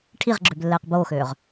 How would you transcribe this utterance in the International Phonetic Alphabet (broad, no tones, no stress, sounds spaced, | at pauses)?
ʈʰ i ʁ ɡ͡ǁ ø b lː ɛː q b oː x øː ʁ